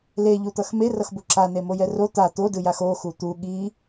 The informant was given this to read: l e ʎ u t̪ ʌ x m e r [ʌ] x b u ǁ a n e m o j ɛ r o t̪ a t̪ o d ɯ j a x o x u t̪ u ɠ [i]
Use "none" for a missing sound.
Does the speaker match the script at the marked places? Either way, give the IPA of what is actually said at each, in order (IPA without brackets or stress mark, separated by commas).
ʌ, i